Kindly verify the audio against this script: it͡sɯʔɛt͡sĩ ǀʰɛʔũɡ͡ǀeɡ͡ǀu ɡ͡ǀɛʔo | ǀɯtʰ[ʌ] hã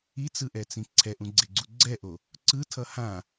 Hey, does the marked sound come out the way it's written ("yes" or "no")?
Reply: yes